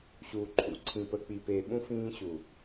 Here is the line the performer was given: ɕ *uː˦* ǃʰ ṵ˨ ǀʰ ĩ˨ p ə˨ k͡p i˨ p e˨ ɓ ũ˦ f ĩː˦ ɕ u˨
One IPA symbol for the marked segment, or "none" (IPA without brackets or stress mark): uː˨